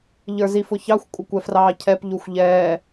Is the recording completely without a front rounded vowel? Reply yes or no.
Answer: yes